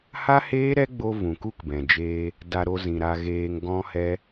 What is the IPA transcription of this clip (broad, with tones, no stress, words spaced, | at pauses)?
ha˦heː˦ɾɛ˦ɡ͡bo˧ vũ˨ku˦kbɛ̃˨ d͡ʒeː˧ | da˧ɾo˧zĩ˨ɾa˧ ɣeː˧ŋɡɔ̃˦hɛ˦